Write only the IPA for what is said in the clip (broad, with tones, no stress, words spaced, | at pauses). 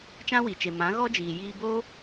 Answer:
t͡ʃã˦wi˨t͡ʃe˨ mã˨˦ɣɔ˦d͡ʒiː˨ jiː˧boː˦